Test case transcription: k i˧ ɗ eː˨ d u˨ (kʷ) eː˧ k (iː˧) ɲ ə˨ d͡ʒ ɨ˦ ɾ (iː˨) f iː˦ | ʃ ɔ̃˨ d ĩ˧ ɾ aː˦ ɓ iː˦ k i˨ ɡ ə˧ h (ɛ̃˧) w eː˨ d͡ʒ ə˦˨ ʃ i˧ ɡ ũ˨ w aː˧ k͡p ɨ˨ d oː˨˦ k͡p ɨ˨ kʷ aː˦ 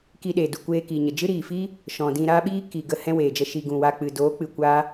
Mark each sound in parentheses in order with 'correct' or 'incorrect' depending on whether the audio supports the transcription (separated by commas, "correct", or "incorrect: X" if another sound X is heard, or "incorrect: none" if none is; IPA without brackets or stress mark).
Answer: correct, incorrect: iː˨, correct, incorrect: ɛ̃˦